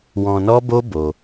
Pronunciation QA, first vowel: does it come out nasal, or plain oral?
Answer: nasal